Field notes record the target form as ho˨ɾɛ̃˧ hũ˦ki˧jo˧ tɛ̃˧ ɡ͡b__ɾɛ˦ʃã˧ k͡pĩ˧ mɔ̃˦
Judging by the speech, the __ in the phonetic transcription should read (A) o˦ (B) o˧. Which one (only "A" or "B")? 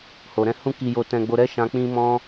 B